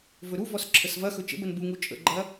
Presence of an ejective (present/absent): present